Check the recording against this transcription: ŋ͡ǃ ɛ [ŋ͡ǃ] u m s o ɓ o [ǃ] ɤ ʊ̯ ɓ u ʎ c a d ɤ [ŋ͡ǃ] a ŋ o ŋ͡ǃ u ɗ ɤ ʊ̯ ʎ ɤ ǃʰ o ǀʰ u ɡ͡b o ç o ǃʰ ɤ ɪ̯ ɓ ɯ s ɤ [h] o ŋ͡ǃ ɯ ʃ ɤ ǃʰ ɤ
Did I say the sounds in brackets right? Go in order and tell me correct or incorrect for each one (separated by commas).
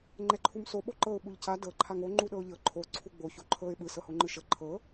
incorrect, correct, incorrect, correct